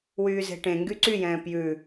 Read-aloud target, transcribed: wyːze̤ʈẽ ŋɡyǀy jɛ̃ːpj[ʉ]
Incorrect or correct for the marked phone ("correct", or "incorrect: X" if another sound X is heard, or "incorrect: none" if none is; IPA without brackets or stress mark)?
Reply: correct